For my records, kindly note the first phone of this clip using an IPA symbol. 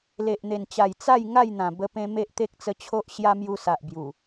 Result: l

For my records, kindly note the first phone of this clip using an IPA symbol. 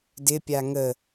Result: d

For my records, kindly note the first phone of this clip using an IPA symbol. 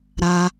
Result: ɾ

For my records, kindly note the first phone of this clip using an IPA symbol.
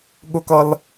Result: ɠ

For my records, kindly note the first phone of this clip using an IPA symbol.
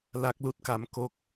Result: l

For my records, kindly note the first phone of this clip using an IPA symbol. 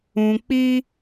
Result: ũ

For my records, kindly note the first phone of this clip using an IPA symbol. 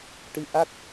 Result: ʈ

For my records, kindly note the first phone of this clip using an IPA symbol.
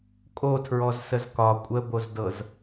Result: kʼ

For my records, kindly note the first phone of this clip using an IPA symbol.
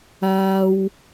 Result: aː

